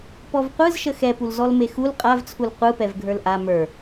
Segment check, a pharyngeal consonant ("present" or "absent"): absent